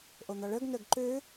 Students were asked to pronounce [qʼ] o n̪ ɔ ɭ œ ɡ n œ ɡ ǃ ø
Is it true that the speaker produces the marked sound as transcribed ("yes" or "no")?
no